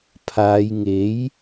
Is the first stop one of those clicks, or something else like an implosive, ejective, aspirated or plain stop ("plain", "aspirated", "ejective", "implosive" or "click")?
aspirated